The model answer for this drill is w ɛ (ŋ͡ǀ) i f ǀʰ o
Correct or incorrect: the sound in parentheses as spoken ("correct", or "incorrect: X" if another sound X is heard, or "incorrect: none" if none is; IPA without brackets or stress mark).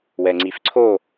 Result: correct